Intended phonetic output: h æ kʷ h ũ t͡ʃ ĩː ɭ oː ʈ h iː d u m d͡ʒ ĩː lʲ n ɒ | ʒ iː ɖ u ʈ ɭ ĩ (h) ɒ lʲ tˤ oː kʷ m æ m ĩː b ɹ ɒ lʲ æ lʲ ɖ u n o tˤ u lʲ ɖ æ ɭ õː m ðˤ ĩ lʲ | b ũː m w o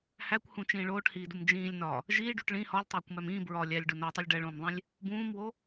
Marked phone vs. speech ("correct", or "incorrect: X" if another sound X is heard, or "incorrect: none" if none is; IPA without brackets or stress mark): correct